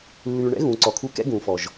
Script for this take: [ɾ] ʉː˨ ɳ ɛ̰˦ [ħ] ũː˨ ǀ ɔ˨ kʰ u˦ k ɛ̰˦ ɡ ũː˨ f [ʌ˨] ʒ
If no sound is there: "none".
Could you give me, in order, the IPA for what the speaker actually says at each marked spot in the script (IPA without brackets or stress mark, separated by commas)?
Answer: lː, ɣ, ɔ˨